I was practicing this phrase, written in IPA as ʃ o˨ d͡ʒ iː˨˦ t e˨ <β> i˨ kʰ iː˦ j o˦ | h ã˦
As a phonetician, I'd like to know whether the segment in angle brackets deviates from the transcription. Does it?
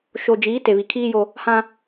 no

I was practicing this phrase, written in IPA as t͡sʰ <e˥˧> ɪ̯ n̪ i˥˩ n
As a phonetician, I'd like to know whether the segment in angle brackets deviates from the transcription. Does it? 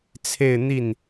no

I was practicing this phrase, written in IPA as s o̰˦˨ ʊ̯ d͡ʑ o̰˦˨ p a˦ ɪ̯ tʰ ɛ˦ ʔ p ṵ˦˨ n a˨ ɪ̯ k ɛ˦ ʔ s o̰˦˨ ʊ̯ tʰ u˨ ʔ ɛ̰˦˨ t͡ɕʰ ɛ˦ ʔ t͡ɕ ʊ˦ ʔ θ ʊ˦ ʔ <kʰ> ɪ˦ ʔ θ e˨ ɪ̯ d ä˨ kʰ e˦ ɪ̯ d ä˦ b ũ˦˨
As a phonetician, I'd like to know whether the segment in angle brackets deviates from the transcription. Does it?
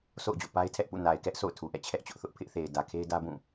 yes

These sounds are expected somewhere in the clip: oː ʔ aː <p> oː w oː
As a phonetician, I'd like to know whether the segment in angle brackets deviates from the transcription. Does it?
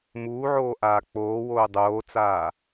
yes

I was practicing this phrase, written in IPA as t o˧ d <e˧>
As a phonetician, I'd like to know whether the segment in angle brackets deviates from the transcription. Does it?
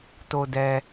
yes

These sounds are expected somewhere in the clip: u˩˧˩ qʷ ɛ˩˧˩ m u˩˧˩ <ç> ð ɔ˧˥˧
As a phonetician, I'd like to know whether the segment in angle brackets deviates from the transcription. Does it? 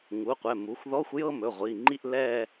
yes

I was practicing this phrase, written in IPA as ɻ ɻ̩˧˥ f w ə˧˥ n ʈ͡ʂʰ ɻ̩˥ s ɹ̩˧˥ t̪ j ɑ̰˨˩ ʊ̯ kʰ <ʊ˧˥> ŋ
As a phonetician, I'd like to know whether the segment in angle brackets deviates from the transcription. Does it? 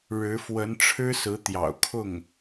yes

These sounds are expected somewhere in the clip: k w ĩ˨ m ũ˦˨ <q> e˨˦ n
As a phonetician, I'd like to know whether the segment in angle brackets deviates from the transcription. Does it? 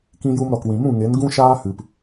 yes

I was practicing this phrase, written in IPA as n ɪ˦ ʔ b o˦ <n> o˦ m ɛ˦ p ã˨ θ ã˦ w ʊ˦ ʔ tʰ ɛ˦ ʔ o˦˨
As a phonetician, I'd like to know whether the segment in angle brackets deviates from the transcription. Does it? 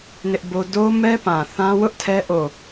yes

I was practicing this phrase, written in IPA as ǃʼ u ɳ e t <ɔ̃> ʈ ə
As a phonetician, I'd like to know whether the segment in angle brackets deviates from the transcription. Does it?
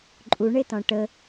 no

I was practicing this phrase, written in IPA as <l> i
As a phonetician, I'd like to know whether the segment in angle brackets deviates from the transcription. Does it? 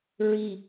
yes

